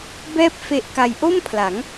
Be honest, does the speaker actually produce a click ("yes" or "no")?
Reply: no